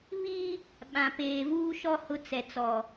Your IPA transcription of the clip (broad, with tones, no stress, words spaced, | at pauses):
βiː˦ | ɓã˨ peː˨vuː˦ʃɔ˦ hʊ˦ t͡sɛ˨t͡sɔ˨